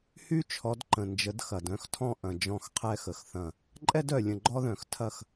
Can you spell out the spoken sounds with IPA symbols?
h y˦ t͡ʃʰ ɔ˨˦ d ǃ ə̃˨ n d͡ʒ ə˨˦ d x ɐ˨ d œ̃˦ x tʰ ɔ̃˦ ʔ ɐ̃˨ d͡ʒ ɔ̃˦˨ x qʰ ɛ˦ x ə˨ x θ ɐ̃˦˨ | ǃʼ ɛ˦ d œ˨ lʲ ə̃˨ ɡ͡ǃ ɔ˦ ð œ̃˨ x tʰ ɐ˦˨ x

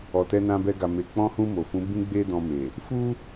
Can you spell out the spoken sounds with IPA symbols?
ɔ˨ t ɛ˧ n ã˧ b ɛ˧ ɡ a˨ m e˨ k͡p ɔ̃˧ h ũ˧ m o˨ f ũ˨˦ b ĩ˦ ɡ͡b e˦ d ɔ̃˧ m e˨ | f u˦

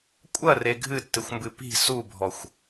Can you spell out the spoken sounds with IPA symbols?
kʷʼ ɐ r e ɡʱ ɨ tː ɨ xʷ m b ɨ p i̤ s u bʱ ɔ xʷ

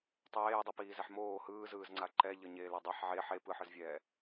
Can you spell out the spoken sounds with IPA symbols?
tˤ eː dˤ ʌ p iː z ɛ ħ m oː h ɯː z ɯː z ŋ͡ǀ a ǃ ɛ ʎ ʌ ɲ eː l ɛ dˤ a ħ ʕ e ħ e p ɯ ħ ɯ z vʲ ɛː

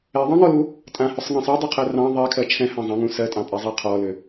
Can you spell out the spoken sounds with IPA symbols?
ɛ ðˤ ɑ̃ ŋ ɔ l u | tʼ ã h ʏ sˤ ŋ ɑ̃ sˤ a dˤ ɛ qʰ ɜ r ɑ̃ ðˤ ɛ kʰ ɜ t͡ʃʰ ɛ̃ h ã zˤ ã ŋ ũ s ɜ tʼ ɑ̃ pʼ ɛ zˤ ɑ qʰ ɔ l ʏ

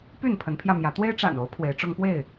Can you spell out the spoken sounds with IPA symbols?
p y˥˨ n pʰ ə˨˦ n pʰ j ä˧ m j ä˨˦ t̪ w e˦ ɪ̯ ʈ͡ʂ a̰˨˩ n o˨˦ ʊ̯ pʰ w e˨˦ ɪ̯ ʈ͡ʂ ʊ˦ ŋ p w e˥˨ ɪ̯

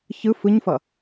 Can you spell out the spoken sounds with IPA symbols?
ç ɯ f ɯ ɲ f ʌ

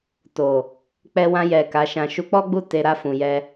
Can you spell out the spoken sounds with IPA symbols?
t o˨ | k͡p ɛ˧ w ã˧ j ɛ˨ k a˨˦ ʃ ã˧ ʃ u˧ k͡p ɔ˦ ɡ͡b u˦˨ t e˧ ɾ a˦ f ũ˧ j ɛ˦

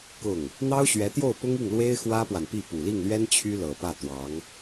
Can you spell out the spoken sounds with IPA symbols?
k ʊ˥˩ ŋ | n̪ ɑ˥ ʊ̯ ɕ ɥ ɛ˧˥ t̪ j o˥˩ ʊ̯ p ʊ˥ ŋ i˥˩ ŋ l w e˥ ɪ̯ x w ä˥ p w a˨ n p i˥˩ p u˨˩ l i˥˩ ŋ l ɥ ɛ˥ n t͡ɕʰ y˥ l ɤ˨˩ p ä˥˩ t̪ w ɑ˧˥ ŋ

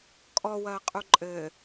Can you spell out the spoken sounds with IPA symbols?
kʼ ɔ w ɐː qʼ u ǃʼ ɘː

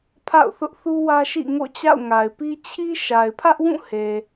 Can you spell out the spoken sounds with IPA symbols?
pʰ a̰˦˨ ʊ̯ θ ʊ˦ ʔ θ u˦ w ä˦ ʃ ḭ˦˨ ŋ o̰˦˨ t͡ɕ a̰˦˨ ʊ̯ ŋ a˨ ɪ̯ p i˦ t͡ɕʰ i˦ ʃ a˨ ɪ̯ pʰ ä˦ ʔ w ũ˦˨ h e˨

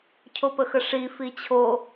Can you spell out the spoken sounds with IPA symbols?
cʰ o p ə x ə ʂ i f i t͡ɕʰ o

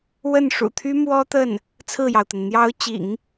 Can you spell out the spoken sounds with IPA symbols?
w ə˥˩ n ʂ ṵ˨˩ t̪ʰ y˥ m w ɔ˥ t̪ ə˥˩ n | t͡sʰ ɹ̩˥˩ j ɑ˩ ʊ̯ t̪ ə˩ n n̪ j ɑ˧˥ ʊ̯ t͡ɕ ḭ˨˩˦ ŋ

